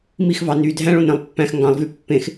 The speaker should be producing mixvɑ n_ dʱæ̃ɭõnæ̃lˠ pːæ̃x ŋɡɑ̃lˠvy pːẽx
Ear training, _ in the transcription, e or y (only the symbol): y